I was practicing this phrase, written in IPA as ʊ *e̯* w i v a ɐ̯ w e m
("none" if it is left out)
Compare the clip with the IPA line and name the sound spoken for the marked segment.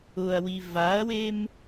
ɐ̯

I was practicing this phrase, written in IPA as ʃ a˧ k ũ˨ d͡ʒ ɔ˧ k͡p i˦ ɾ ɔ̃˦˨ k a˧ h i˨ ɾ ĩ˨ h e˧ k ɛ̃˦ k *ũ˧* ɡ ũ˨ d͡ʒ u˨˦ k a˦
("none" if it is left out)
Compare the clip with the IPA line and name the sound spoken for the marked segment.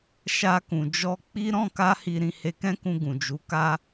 ũ˧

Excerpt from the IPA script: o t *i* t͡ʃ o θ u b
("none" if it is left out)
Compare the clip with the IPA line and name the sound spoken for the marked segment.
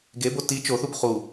i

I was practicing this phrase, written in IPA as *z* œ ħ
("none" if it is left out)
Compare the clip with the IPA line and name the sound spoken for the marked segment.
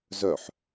z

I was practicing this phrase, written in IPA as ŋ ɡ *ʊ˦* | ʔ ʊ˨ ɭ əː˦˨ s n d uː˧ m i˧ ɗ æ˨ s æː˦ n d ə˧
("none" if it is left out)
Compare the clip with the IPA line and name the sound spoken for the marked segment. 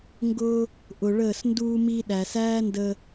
ʊ˧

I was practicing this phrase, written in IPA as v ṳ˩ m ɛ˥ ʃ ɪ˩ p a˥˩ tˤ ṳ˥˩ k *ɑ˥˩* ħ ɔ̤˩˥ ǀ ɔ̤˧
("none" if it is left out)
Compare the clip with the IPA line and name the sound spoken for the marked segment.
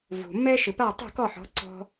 ɔ˥˩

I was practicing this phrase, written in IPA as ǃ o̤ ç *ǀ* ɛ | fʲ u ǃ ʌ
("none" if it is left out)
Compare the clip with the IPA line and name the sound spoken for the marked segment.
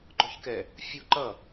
k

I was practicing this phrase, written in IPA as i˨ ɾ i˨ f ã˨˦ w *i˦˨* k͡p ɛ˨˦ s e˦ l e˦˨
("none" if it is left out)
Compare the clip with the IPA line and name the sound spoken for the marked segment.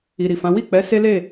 i˦˨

